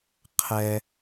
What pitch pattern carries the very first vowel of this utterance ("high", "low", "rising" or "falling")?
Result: low